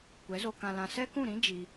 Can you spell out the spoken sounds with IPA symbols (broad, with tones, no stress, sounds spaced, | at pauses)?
kʷ ɛ˨˦ z o˧ k ã˧ l ã˧ s ɛ˦ k ũ˦˨ ɾ ĩ˦ d͡ʒ i˧